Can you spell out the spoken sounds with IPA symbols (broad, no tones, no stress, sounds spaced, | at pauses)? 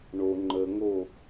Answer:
ɳ o ŋ͡ǃ ə ŋ o